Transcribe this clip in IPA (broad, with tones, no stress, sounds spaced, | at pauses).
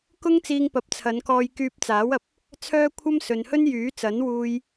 k ʊ˥ ŋ t͡s iː˧ ŋ p ɐ˨˥ p̚ t͡sʰ ɐ˨˧ n k ɔː˧ j k yː˧ p̚ t͡s aː˨˥ w ɐ˨ p̚ | t͡sʰ œː˥ kʷʰ ɐ˥ m s ɵ˨ n h ɵ˥ n j yː˨˥ t͡s ɐ˨˥ n w uː˧ j